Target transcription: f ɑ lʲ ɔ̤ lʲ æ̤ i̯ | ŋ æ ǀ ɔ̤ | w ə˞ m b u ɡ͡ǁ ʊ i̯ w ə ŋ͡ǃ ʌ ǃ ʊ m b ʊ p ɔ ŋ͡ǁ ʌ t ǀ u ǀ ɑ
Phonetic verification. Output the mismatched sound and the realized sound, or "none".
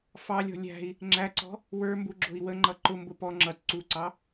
ŋ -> ŋ͡ǁ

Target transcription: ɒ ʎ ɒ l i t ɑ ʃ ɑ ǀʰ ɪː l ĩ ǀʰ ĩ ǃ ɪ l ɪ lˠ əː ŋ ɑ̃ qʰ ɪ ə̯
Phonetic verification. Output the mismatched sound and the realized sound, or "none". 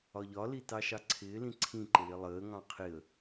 none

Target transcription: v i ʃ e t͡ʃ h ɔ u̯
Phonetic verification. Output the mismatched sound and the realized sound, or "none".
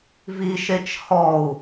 none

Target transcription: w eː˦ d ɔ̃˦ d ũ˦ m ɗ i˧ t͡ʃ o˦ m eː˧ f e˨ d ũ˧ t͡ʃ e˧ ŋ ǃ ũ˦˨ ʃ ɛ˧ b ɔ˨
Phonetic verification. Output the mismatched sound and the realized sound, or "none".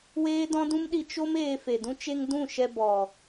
ǃ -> d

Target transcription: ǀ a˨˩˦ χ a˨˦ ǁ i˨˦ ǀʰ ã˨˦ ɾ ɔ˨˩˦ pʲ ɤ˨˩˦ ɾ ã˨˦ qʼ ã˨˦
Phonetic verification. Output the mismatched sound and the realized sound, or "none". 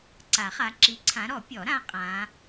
ɤ˨˩˦ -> ɔ˨˩˦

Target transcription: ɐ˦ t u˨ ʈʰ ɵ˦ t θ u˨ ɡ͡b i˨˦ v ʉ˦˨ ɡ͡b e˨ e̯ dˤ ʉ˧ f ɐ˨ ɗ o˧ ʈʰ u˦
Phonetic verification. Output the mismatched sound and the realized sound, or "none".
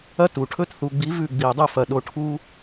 e˨ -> i˨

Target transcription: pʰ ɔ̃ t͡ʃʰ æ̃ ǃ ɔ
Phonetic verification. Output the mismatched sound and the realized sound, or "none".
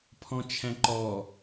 none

